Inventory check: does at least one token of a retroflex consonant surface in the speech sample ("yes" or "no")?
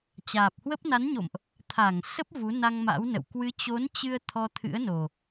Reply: no